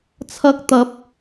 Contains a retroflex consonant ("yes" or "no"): no